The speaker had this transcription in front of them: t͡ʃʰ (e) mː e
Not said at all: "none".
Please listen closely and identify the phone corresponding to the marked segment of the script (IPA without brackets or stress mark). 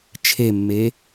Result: e